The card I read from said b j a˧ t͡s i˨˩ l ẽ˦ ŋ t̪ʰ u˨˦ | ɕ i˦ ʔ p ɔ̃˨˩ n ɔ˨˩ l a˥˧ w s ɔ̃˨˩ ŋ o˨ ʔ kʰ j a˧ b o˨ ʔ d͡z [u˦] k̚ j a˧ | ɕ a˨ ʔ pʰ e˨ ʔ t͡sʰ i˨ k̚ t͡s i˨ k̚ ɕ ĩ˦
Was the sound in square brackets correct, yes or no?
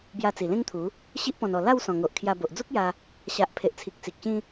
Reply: yes